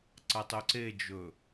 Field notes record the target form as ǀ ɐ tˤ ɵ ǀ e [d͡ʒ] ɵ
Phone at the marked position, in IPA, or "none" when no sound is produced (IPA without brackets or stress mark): d͡ʒ